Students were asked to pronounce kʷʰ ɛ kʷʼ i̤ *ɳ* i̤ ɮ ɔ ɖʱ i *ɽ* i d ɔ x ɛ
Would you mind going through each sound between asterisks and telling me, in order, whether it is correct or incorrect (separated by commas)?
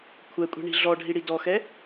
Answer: correct, correct